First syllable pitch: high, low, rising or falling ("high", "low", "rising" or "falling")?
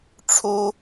high